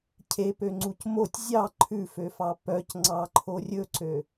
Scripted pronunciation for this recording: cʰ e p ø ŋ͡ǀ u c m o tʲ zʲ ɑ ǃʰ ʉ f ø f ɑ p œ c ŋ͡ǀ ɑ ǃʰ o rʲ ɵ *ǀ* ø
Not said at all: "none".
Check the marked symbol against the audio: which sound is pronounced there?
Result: ǀ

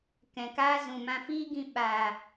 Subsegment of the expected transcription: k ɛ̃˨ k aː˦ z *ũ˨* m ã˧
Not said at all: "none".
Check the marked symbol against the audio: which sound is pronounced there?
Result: ũ˨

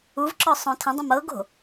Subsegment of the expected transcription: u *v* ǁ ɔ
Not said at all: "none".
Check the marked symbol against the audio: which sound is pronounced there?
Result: v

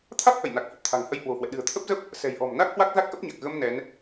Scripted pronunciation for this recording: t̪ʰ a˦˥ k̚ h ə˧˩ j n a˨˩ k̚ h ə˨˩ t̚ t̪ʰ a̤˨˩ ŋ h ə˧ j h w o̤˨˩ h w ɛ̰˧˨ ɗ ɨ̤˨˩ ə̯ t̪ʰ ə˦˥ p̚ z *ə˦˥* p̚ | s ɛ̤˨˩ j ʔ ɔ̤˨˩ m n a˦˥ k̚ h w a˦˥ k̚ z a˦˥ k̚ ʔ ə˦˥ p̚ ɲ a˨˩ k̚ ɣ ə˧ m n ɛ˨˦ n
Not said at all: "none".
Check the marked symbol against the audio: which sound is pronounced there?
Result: ə˦˥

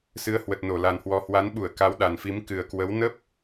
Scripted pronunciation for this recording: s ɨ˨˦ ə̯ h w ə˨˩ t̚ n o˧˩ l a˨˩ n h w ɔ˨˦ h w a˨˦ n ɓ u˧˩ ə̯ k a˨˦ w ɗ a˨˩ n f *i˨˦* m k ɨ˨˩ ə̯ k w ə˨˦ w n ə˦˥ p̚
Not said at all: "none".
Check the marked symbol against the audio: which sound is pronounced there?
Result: i˨˦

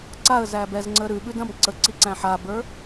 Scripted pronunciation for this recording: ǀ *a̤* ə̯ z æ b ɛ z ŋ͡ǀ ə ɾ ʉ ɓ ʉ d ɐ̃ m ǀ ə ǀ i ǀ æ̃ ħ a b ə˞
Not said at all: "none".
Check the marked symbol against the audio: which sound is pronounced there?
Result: a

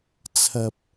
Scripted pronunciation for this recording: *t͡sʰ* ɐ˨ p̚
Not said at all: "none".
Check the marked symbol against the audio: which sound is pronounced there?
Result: t͡sʰ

